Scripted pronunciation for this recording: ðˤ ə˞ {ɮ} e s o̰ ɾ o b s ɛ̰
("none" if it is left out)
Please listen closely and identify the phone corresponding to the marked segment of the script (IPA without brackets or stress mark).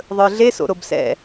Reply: ɮ